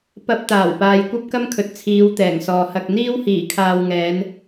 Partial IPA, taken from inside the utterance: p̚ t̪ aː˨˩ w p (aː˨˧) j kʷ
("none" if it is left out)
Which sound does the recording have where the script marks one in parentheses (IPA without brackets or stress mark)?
aː˨